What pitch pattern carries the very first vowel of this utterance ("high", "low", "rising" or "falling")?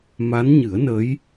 rising